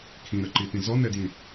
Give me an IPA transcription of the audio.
kʰ ĩ ɾ ə ǃ i t ĩ z ɔ n ɛ d j ĩ

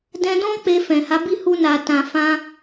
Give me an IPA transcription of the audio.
d ɛ̃˧ d ɔ̃˦ k͡p e˧ f ɛ̃˨ h a˨˦ b i˦˨ h u˧ n a˨ t ã˨ f ã˧

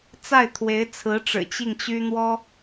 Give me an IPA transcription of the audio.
t͡s a˥˩ ɪ̯ t̪ʰ w e˧˥ ɪ̯ t͡sʰ ɹ̩˧˥ ʈ͡ʂ ɻ̩˨˩ t͡ɕ i˥˩ ŋ t͡ɕ y˥ n̪ w ɔ˥

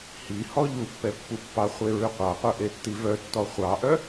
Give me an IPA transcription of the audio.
h i h ɔ ʎ u pː ɛ pː u pː ɑ χʷ e ɹ ʉ qʷ ɑ qʷ œ ʔ e tː i v œ tː ɔ χʷ ɑ ʔ œ

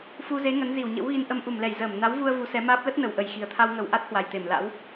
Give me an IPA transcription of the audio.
f u˧ z e˨˦ ŋ ə˨˦ n z i˧˩ w ɲ ə̰˧˥ w ɣ i˧ n ʔ ə˧ m ʔ u˧˩ m l ɛ˧˩ j z əː˧˩ m n a˨˦ w v u˧ ə̯ v u˨˦ s ɛ˨˦ m aː˦˥ p̚ l ə˦˥ t̚ n ə˨˩ w ʔ ə˨˩ j x i˨˩ ə̯ t̪ʰ a˧ w ŋ ə˧˩ w ʔ a˦˥ t̚ h w a˨˩ j t̪ e˧˩ m l a̰˧˥ w

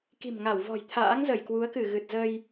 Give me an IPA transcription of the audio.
k i̤˨˩ m ŋ a˧˩ w v ɔ̤˨˩ j t̪ʰ a̰ː˧˥ ŋ z ə˧˩ j k w u˨˦ ə̯ k ɨ˧˩ ɣ ɨ˨˩ t̚ z ə˧ j

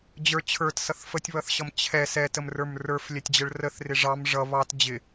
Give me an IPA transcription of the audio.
d͡ʑ ə˞ t͡ɕʰ ə˞ t s ʌ θ f ə tʲ β ʌ θ ɕ ʌ m t͡ɕʰ ɛ s ɛ t ə m r ə˞ m r ə˞ f lʲ ɛ tʲ d͡ʑ ə ɭ r ə θ r ɪ ʐ ɑ m ʐ ʌ β ɑ t d͡ʑ ɪ

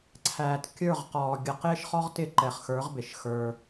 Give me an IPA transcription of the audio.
ǀʰ æː˨ t kʲ ə˞˦˨ ʁ q ɔː˨ ɡʲ ə˨ q ɪː˦ ʃ χ ɔ˦ ʁ t ɪ˦˨ ǃ ɛ˨ χ x ə˞˨˦ ʁ b ɪ˨ ʃ x ə˞˦

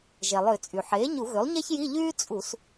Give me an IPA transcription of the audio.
ʒ ɛ˩ lˠ ø˧˩˧ t͡sʼ y˩ ħ eː˩˥ ɲ u˧˩˧ ɣ ø˩˥ lˠ ɲ ɛ˥ ç j i˧˥˧ ʎ yː˥ t͡sʼ u˧˩˧ s

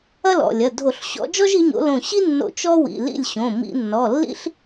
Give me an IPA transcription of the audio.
ɐ˥ l ɔ̰˩˧˩ lʲ ɐ˩˧˩ dʱ o˧˩˧ ɬ ɕ ɔ̰˨˦ d͡ʒ ɔ˥ ʒ i˨˦ ɲ o̰˨˦ l õ˧˩ ɕ i˥ nː o̰˧˩ t͡ʃ ɔ˥ w ḭ˩˧˩ l ḭ˥˨ lʲ ɕ õ˩˧˩ m ḭ˧˩˧ nː ɔ˩˧˩ lː ḭ˥ ɬ

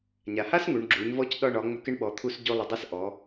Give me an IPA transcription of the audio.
ɲ a˩ h a˥ s ŋ u˩˧ ɳ ɡ͡ǁ u˩˧ ɲ v ɔ˧˥ c ɗ ɒ˧ ɳ ɒ˩˧ ŋ͡m ʏ˧˥ k ɪ˧˥ ɳ ɓ ɔ˩˧ t̪ʰ u˧ s ɟ o˧ lˠ ɪ˩˧ dˤ æ˧˥ s ʔ ɔ˩˧

